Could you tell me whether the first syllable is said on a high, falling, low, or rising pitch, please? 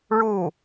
falling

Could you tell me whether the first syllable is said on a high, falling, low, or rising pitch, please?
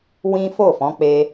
high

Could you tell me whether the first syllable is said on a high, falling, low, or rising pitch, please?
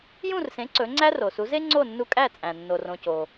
falling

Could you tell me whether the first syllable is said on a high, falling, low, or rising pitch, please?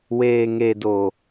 low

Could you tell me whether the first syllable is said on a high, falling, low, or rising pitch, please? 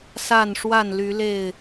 falling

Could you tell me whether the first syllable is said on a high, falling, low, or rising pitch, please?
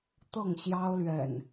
falling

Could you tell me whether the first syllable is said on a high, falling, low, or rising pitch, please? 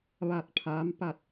falling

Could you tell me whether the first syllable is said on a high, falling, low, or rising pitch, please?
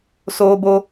high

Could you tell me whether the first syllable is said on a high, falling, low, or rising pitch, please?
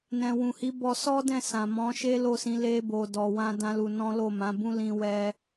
low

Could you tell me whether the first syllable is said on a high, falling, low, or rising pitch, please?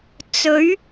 rising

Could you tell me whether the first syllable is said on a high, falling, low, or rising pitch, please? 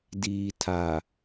low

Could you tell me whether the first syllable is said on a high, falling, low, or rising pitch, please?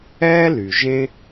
high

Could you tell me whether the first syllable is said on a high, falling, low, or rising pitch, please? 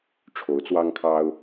rising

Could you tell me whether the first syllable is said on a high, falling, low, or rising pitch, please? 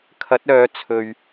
rising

